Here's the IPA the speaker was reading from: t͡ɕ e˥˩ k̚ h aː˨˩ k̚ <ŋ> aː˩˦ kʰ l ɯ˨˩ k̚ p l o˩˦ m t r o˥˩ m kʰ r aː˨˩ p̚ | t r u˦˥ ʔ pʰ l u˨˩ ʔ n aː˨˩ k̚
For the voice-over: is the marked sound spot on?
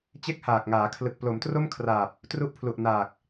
yes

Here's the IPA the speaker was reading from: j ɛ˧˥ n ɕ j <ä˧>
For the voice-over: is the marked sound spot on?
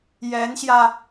yes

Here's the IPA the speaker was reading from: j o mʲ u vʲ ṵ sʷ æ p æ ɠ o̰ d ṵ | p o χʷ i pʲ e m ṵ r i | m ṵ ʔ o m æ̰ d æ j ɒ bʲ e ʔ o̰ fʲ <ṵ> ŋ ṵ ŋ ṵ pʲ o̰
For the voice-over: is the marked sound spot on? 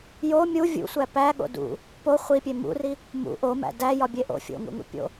no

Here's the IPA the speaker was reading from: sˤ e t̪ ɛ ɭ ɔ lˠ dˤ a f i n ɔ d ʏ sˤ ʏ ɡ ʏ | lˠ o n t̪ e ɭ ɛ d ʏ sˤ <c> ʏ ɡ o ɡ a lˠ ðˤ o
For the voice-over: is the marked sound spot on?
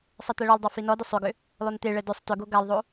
no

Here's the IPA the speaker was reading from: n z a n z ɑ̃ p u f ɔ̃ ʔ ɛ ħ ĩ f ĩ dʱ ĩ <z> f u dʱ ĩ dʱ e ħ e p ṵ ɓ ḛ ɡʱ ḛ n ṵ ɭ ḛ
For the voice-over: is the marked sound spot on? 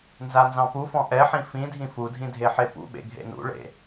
no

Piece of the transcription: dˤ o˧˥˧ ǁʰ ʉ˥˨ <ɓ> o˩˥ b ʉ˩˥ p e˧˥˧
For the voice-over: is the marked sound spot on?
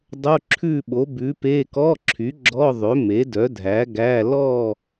yes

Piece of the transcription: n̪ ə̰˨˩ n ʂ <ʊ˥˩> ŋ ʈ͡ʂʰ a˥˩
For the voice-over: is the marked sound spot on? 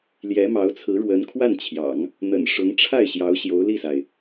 no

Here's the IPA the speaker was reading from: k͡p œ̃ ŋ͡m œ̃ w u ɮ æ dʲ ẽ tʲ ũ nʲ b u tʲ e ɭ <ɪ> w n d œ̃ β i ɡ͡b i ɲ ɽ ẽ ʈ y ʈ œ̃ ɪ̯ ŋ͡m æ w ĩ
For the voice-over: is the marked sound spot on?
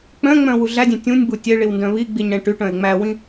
no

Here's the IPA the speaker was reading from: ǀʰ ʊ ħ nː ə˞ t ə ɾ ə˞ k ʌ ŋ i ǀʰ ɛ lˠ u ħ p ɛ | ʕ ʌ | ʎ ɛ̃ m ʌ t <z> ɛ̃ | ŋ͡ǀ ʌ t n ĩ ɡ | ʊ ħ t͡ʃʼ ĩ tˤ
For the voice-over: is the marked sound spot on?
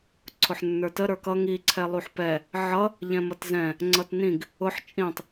yes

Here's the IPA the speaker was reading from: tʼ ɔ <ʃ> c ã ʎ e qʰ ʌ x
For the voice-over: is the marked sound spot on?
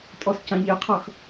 no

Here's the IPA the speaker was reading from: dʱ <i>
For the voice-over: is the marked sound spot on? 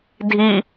yes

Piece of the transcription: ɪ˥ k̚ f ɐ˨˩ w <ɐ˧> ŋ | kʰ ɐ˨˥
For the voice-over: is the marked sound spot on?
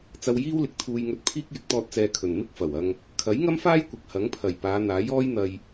yes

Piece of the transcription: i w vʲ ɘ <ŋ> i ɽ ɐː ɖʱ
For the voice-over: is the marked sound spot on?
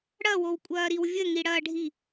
yes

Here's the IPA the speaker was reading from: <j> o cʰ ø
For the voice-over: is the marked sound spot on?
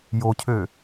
yes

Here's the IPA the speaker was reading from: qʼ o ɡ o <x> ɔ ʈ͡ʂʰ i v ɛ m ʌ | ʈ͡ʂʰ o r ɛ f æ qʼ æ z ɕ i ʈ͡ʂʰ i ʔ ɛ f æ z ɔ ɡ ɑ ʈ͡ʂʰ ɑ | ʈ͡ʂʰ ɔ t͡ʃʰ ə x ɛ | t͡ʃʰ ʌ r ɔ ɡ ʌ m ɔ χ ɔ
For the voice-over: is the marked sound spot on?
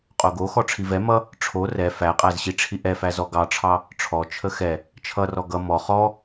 yes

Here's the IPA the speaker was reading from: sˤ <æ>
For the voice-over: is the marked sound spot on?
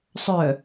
no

